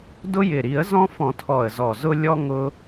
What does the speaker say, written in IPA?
dʊ˦jɪ˨˩ɾi˨˩˦ə̯zɔ̃˦ fɔ̃˨˩˦tʰɔ˨˩ə̯ zɔ˨˩zʊ˦ lʲɔ˦ ŋʊ˦

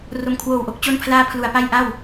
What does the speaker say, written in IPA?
ro˨˩mkʰwoː˨˩wʔo˦˥k̚ t͡ɕo˦˥npʰlaː˦˥ pʰlu˨˩a̯pa˥˩jʔa˥˩w

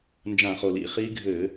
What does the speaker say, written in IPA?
nd͡ʒã˧˩˧χo˩lḭ˩ χi˦˥ ɡʱɘ˧˩˧

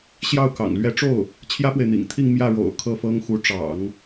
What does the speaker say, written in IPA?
ɕjɑ˥˩ʊ̯kɑ̰˨˩ŋ lɥɛ˧˥ʈ͡ʂo˥˩ʊ̯ | t͡ɕʰjä˥pwe˨ɪ̯n̪ḭ˨˩ŋt̪ʰi˥˧ŋ mjä˥˩ ɻo̰˨˩ʊ̯ kʰɤ˥˩fɤ˥ŋxu˧˥ ʈ͡ʂɑ̰˨˩˦ŋ

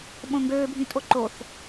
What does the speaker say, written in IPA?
ɓõŋɡøːbʱĩ tʼoǃoθ

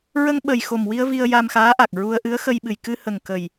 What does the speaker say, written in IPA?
ɹə˧ŋɓə˨˩jxo˨˩mwi˧ə̯ vi˧ə̯ja˧mxaː˧˥ʔa˨˩k̚ ɹu˧ə̯ ʔɨ˧˥ə̯xə˧jɓɨ˨˩j kɨ˧hə˨˩ŋ kə˨˩j

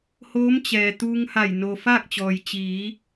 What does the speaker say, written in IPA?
hoː˧˥mt͡ɕɛː˩ t̪uː˧ŋ ha˧˩j no˩ faː˥˨k̚t͡ɕɔː˩j t͡ɕiː˩˧

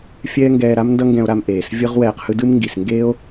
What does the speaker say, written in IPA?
fʲɛː˥ŋɡɛː˧ɾa˥m ndʌ˥ŋɡɛ̃˧o̯ɾa˧m ʔeː˩s vʲɯ˥ʁwɛː˧qhɯ˥ dɯ˥mŋɡi˩s ŋɡeː˥o̯

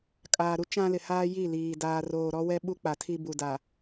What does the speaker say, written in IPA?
kʼaː˨ɾu˦ t͡ʃã˦lɪ˨haː˦ ji˦˨ liː˨ daː˨roː˨ ɾɔ˦wɛ˦ ɓu˦k͡pa˨tʰi˦ bu˨da˨

